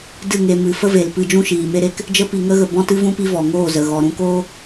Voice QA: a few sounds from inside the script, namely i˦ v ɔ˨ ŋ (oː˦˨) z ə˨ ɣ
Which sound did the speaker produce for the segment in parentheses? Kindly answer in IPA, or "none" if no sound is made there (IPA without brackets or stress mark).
oː˦˨